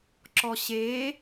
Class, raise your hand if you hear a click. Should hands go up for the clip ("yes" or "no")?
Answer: yes